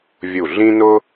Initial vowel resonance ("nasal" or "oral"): oral